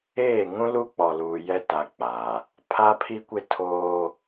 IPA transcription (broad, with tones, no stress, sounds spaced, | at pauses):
eː˦˨ ŋ ũ˦ l u˦ k͡p ɔ˨ l uː˨ j ɛ˦ t a˦ k͡p a˨ | pʰ a˦ pʰ i˦ kʷ ɪ˦ tʰ oː˦